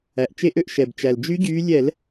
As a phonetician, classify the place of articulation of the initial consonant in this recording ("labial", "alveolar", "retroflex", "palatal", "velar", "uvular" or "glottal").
glottal